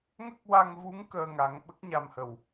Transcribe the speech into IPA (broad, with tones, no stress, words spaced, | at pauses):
ŋə˦˥k̚wa˧ŋvu˧˥ŋ kəː˧ŋa˨˩˦ŋ ɓə˦˥k̚ɲa˨˩mhə˨˩˨w